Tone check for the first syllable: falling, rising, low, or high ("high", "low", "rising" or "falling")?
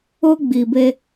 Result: high